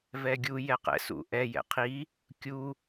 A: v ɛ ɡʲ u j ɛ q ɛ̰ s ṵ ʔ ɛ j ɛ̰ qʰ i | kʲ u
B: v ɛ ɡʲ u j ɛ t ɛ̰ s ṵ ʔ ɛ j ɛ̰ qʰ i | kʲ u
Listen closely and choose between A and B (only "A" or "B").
A